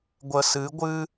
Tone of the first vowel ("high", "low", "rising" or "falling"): low